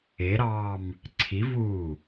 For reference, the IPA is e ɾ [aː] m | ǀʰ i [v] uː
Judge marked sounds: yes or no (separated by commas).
no, yes